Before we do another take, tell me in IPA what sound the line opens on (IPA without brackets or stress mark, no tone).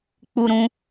k͡p